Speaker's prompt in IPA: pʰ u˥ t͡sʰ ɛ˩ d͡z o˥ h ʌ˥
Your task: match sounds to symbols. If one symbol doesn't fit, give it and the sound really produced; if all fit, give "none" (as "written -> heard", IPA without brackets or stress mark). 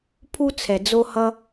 none